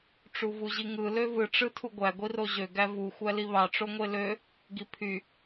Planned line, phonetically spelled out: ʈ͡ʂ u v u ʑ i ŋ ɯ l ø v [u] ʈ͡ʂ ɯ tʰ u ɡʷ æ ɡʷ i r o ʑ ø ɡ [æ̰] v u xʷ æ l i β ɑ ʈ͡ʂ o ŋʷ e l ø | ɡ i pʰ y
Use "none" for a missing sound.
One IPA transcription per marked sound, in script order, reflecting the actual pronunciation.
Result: ɯ, æ

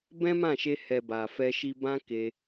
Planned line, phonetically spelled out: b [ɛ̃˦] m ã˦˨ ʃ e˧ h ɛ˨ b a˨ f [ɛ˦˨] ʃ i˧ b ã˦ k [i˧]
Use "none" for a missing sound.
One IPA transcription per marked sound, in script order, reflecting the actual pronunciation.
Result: ɛ̃˦, ɛ˧, e˧

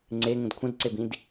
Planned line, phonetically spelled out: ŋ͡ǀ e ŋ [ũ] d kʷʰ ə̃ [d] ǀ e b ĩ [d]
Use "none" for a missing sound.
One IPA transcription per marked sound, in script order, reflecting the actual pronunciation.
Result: ũ, d, d

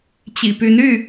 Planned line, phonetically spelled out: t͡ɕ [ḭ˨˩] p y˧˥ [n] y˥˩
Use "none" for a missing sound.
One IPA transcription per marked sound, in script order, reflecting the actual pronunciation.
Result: ḭ˨˩, n

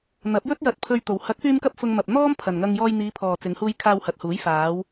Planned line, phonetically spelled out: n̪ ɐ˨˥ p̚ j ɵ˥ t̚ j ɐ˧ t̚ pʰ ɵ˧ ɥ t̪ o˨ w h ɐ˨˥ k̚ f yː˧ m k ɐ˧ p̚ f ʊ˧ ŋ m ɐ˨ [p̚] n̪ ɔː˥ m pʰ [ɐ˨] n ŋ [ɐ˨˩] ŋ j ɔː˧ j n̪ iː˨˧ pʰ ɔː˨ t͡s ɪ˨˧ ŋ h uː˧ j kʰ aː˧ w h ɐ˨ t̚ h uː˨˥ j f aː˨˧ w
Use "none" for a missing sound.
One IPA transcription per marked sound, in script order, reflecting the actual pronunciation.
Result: p̚, ɐ˨, ɐ˧

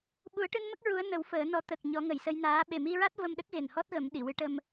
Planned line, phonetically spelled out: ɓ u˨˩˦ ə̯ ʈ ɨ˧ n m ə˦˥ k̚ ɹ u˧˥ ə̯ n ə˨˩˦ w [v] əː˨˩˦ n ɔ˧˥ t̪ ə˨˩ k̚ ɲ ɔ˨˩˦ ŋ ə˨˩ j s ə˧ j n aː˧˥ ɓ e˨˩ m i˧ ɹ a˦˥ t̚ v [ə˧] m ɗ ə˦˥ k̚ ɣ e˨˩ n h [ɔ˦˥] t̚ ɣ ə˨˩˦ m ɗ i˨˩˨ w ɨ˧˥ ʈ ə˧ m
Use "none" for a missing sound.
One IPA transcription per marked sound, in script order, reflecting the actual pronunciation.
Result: f, ə˧, ɔ˦˥

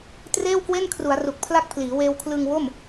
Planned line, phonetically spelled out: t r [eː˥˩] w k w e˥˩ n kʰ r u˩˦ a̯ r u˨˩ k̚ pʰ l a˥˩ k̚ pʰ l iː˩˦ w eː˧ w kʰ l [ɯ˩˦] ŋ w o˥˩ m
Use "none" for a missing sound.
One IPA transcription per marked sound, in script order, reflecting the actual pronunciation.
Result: eː˥˩, ɯ˧

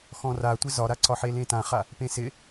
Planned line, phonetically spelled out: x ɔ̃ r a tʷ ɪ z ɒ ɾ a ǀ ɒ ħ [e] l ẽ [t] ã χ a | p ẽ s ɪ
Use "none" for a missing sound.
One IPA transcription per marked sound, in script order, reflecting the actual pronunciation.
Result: e, t

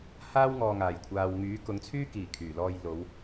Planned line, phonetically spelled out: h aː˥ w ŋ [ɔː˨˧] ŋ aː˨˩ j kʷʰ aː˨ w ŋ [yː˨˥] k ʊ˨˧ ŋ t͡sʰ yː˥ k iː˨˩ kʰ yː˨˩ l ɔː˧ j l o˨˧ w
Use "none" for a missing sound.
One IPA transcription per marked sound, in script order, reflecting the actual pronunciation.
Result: ɔː˨, yː˨˥

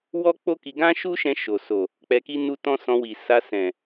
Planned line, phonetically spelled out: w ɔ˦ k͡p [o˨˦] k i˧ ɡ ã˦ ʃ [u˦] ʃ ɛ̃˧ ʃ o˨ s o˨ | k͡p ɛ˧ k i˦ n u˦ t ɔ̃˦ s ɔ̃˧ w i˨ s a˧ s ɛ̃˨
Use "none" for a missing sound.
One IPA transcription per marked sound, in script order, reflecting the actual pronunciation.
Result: o˦, u˦

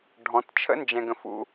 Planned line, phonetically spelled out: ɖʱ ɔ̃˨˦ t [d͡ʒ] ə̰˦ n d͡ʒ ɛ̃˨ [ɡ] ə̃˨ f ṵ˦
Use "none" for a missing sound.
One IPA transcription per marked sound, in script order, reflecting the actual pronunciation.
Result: t͡ʃʰ, ɡ

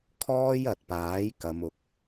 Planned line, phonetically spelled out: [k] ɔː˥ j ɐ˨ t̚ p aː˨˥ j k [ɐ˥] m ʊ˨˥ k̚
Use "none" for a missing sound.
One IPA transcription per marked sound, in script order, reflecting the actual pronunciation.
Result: kʰ, ɐ˨˧

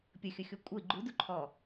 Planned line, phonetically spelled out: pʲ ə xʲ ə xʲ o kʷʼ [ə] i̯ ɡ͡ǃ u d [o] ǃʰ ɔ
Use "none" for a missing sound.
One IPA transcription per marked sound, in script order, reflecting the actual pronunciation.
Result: ə, u

